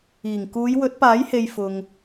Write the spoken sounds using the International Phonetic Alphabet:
iː˨˩ ŋ k uː˨˧ j w ɵ˨˥ t̚ p aː˨˥ j h e˨ j f ʊ˨ ŋ

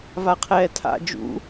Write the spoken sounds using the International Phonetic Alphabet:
v a qʰ ɛː tʰ a̰ d͡ʒ ṵ

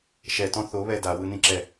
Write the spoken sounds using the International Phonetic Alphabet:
ʃ ɛ t ɔ̃ θ o β ɛ d a w ɯ n ĩ ǁ ɛ

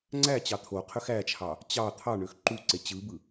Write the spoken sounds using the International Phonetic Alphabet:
ŋ͡ǀ æ t͡ɕ ɑ t̪ʰ o qʰ ø x æ t͡ʃʰ ɑ | t͡ɕ ɑ t̪ʰ ɑ ɳ ø x ǃ u ǀ e t͡ɕ ɯ b ɯ

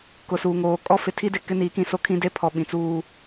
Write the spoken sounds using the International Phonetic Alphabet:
k ʊ˨ s uː˨ ŋ oː˨ kʼ ɔ˦ f ɪ˨ tʰ i˦ d e˨ k ɪ˦ n iː˨˦ k ĩ˨ s o˦ kʰ ĩ˦ d e˦ pʰ ɔ˨ ɓ ĩ˨ t͡s uː˦

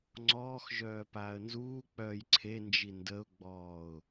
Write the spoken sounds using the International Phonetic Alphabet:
ŋ͡ǀ ɔː x ʒ œː p aː ə̯ n z uː k͡p œː j ǀʰ e n d͡ʒ i n d ə ʊ̯ ɡ͡b ɔː ʊ̯

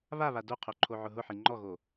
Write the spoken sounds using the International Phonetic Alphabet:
β a β a d o qʰ o ǃʰ o ʕ ʊ ɦ ʊ ħ i ŋ͡ǃ ɔ ɣ o

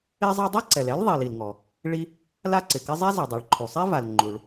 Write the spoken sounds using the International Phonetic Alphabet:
e˥ zˤ a˥ dˤ ɛ˥ ǀ ɛ˩ l ɛ˥ l ðˤ i˩ l i˩ l ŋ ɔ˩ | ɭ i˥ | l a˥ ǀ ɪ˩ k ɪ˥ zˤ ɛ˥ z ɛ˩ dˤ a˩ ɭ ǃʰ u˩ sˤ e˥ v a˩ l ŋ͡ǃ u˩ ɭ

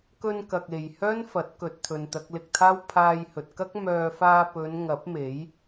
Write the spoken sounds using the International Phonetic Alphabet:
k ɵ˧ n k ɐ˨ k̚ e˨ j h œː˥ n f ɐ˨˥ t̚ k ɵ˨ t̚ t̪ʰ ɵ˨ n t̪ ɐ˨˥ k̚ l ɪ˧ k̚ t̪ʰ aː˥ w pʰ aː˧ j h ɵ˨ t̚ k ɐ˥ k̚ m œː˧ f aː˧ p ɵ˨˧ n ŋ ɐ˨˥ p̚ m e˨˥ j

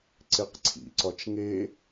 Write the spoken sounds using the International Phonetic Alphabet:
ǀ e q ǀʰ ḭ ǀ ɒ t͡ʃ ŋ e

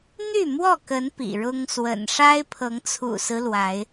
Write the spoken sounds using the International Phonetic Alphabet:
n̪ y˥˨ m w ɔ˥˨ k ə˨˦ n p ḭ˨˩ ɻ ʊ˦ ŋ s w ə̰˨˩ n ʂ a˦ ɪ̯ pʰ ɤ˨˦ ŋ t͡sʰ ṵ˨˩ s ɹ̩˦ l w a˨˦ ɪ̯

